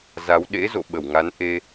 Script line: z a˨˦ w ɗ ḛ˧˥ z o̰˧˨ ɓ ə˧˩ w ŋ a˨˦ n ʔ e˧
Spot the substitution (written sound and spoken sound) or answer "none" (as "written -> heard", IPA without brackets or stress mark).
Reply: none